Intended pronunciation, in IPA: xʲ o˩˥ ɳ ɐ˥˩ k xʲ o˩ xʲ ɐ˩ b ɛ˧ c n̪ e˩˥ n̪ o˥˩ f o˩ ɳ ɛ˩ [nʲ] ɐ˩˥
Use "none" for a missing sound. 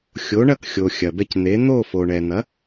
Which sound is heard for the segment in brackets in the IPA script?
n̪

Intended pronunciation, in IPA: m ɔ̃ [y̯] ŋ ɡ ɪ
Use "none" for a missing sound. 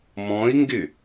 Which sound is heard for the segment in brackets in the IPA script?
i̯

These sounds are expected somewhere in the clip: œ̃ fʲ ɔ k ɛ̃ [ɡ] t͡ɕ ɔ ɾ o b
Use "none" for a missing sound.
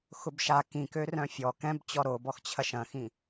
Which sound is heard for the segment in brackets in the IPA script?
b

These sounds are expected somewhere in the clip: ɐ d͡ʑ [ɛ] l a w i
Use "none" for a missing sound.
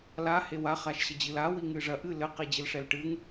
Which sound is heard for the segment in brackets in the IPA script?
ɨ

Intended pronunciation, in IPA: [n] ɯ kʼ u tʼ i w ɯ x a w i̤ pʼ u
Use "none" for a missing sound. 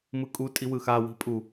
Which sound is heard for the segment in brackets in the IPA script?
m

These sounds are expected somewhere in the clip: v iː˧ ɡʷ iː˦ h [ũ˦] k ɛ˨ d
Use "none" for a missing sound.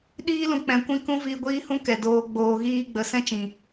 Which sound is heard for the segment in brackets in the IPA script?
ũ˦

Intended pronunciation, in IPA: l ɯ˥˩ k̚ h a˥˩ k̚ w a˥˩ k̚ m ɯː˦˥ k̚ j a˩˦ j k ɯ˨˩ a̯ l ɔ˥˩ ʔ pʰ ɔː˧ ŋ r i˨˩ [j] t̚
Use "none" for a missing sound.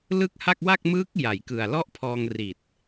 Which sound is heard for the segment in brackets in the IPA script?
none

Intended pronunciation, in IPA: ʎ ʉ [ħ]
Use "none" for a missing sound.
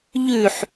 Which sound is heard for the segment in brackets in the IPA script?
ħ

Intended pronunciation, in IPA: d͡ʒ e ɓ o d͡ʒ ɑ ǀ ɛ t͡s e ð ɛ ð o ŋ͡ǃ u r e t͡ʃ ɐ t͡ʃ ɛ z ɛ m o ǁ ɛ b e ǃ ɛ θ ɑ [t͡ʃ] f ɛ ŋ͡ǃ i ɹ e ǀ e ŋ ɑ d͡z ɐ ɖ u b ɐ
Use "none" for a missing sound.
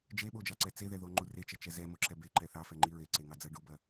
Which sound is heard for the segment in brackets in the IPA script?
none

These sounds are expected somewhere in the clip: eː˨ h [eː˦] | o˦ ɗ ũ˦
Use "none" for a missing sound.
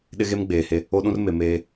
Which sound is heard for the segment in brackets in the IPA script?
e˦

